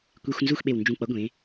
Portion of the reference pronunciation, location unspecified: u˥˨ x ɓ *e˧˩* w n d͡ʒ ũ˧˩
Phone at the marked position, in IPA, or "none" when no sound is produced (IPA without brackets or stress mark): e˧˩